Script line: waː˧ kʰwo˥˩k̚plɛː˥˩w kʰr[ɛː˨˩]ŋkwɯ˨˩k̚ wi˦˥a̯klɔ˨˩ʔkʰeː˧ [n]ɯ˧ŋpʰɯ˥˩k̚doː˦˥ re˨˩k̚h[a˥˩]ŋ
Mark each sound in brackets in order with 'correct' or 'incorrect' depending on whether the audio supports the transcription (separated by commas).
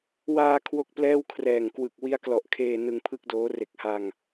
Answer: correct, correct, incorrect